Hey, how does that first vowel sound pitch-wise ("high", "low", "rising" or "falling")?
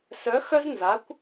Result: rising